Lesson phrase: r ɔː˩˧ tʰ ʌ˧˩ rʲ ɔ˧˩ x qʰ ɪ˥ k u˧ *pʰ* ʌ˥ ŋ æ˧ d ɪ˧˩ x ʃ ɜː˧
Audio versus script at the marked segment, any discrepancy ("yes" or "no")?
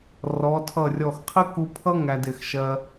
no